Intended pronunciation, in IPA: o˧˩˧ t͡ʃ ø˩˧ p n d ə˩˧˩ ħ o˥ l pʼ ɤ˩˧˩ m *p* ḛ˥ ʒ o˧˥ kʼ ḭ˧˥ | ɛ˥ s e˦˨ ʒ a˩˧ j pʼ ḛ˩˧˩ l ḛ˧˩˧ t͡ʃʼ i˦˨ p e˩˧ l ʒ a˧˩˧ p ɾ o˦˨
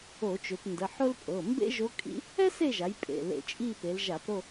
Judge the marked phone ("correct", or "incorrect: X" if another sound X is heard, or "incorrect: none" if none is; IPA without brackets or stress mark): incorrect: b